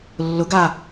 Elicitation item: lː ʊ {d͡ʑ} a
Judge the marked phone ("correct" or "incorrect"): incorrect